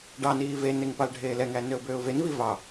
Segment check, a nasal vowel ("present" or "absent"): absent